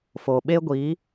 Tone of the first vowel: low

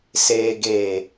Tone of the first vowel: low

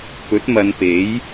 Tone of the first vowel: rising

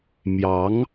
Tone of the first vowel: rising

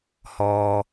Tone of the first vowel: low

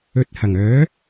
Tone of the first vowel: rising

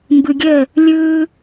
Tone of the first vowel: low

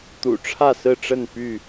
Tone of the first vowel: low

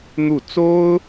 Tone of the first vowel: falling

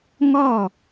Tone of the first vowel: falling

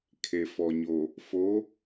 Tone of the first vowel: low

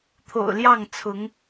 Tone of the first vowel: low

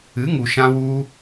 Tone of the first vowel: rising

